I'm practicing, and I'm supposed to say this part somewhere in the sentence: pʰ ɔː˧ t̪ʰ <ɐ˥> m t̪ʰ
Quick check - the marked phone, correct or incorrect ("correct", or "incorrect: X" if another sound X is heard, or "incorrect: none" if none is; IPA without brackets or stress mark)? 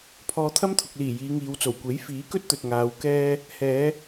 correct